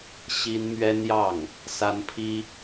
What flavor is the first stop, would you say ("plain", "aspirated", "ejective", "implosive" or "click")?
aspirated